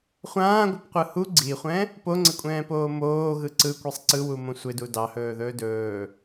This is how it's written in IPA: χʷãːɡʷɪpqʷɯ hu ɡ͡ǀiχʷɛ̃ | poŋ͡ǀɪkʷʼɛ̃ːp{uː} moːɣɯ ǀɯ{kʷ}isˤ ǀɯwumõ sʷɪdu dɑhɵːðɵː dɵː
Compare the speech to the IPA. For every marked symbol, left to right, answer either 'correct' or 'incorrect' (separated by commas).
incorrect, correct